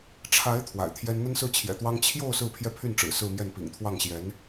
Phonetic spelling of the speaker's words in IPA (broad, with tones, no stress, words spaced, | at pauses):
ʈ͡ʂʰa˧˥ɪ̯ t̪ʰwa̰˨˩ɪ̯t̪ʰjɛ˥n n̪ə˥nsɹ̩˥˩ t͡ɕʰjɛ̰˨˩t̪wɑ˥ŋ t͡ɕʰjo˥˧ʊ̯ sɹ̩˥˧pʰjɛ˥˧pʰy˥˩n ʈ͡ʂɻ̩˨˩sɹ̩˥˧mjɛ˥˩n pḭ˨˩ŋt̪ʰwɑ˥˩ŋɕjɛ˧˥n